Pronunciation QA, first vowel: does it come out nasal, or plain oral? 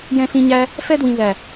nasal